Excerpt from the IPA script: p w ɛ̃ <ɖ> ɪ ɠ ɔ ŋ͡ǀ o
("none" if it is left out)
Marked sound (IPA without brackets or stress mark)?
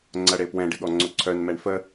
ɖ